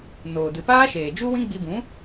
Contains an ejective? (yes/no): no